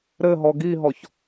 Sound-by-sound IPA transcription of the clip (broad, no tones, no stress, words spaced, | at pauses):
ɾɘɦɔ ɡiɦɔç